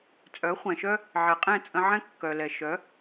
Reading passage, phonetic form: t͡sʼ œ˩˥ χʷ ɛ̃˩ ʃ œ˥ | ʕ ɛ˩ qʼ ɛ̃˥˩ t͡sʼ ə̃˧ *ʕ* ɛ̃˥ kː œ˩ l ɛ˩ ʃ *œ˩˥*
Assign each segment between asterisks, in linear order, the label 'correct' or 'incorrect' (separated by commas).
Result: correct, correct